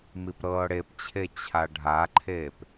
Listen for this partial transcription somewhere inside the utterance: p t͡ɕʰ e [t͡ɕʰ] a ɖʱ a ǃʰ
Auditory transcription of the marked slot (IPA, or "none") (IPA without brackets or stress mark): t͡ɕʰ